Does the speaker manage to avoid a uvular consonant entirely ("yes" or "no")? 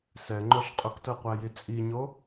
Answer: no